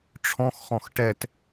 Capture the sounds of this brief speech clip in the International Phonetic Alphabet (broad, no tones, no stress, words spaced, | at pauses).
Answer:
ʈ͡ʂʰɔ̃xχɔ̃x ʈɛt